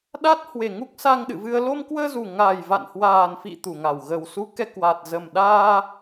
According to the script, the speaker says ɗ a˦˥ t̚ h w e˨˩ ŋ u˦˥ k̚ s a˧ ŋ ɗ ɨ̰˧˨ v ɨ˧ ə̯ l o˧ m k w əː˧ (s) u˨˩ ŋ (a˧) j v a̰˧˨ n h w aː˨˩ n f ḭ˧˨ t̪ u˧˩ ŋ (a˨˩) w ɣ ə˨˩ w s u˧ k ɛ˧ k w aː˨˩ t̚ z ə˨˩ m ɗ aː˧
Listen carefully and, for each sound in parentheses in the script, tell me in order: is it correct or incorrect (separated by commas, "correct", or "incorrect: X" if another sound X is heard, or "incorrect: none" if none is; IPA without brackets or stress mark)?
incorrect: z, incorrect: a˨˩, correct